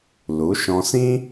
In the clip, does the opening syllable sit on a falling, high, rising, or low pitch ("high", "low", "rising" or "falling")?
rising